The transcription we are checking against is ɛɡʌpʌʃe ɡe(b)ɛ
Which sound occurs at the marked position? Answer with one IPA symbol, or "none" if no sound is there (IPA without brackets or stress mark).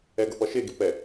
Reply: p